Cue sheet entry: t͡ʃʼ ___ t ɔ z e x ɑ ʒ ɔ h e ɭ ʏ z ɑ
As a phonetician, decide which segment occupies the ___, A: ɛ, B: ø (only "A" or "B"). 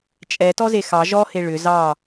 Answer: A